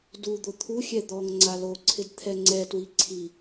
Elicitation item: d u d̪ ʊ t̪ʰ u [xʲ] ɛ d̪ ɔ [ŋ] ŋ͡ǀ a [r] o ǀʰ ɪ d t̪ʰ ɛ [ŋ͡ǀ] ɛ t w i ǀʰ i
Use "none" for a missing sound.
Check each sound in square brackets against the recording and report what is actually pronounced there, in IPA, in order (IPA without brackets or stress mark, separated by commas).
xʲ, ŋ, l, ŋ͡ǀ